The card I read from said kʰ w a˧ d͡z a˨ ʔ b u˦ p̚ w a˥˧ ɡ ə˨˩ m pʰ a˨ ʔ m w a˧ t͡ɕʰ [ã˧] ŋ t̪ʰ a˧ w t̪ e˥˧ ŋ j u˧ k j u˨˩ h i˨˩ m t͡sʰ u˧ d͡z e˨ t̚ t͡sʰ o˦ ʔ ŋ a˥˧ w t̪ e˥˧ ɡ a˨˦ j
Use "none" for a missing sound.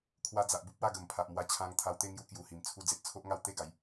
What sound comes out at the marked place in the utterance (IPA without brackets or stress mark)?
ã˧